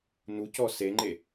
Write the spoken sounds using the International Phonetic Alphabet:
nucɔ seŋ͡ǃe

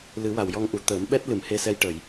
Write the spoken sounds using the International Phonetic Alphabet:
lɨ˨˩˦wa˨˩˨wjɔ˧ŋʔu˨˩˨ t̪əː˨˩˦mɓɛ˦˥t̚ lɨ˨˩˨mhe˧sɛ˧j ʈə˨˩˨j

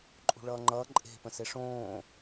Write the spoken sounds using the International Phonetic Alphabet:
ǃʼṳɭʌːŋ͡ǃʌː ǃʼe̤ pə̃seʂõː

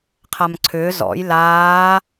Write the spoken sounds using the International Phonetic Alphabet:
qʰamǀʰʏː zɔ̰j laː

